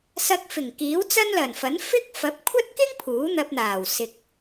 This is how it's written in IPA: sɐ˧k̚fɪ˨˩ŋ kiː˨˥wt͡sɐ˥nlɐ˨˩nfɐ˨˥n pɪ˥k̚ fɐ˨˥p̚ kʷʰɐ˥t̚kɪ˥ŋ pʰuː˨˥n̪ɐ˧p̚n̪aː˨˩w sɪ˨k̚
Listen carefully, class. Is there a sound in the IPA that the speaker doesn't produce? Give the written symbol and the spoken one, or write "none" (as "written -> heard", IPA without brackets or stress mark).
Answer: p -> f